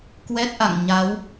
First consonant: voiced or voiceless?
voiceless